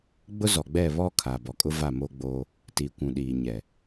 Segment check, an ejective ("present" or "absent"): present